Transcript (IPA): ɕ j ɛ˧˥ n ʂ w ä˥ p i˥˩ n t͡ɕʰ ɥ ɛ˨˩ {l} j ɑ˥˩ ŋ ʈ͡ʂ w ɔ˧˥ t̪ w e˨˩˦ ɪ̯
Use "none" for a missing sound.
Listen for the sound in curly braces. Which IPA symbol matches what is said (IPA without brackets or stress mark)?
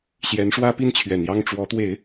n